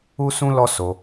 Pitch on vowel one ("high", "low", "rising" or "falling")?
high